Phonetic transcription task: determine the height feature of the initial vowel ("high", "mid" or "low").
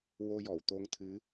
mid